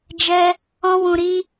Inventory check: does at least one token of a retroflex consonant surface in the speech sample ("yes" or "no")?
no